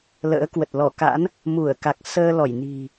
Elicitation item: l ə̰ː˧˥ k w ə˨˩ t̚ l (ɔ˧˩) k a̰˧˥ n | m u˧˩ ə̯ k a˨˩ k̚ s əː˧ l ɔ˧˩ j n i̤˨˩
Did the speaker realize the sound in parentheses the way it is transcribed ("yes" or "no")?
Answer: yes